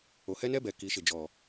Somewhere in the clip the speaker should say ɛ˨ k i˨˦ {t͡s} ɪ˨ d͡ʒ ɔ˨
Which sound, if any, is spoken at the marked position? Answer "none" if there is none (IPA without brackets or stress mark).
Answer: ʃ